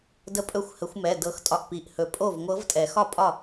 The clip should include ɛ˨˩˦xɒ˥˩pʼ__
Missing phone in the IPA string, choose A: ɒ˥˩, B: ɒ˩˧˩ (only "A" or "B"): A